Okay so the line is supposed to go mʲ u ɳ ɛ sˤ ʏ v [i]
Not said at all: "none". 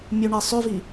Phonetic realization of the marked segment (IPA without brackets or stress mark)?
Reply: i